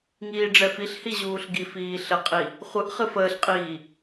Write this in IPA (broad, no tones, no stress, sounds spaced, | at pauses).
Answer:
ŋ iː ɖ͡ʐ ɛ f i ɬ h i ʑ uː ɬ ɡ i f iː ɬ ə qʼ i | χʷ ɨ ʔ χ ɨ f əː ɬ qʼ iː